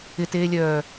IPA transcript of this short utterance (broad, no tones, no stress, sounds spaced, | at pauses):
ɪ t eː lʲ œː